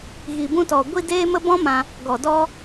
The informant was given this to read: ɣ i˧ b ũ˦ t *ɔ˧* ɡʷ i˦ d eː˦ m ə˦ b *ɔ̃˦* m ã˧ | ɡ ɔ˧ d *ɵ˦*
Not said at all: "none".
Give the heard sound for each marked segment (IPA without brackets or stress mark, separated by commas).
ɔ˧, ɔ̃˦, ɔ˦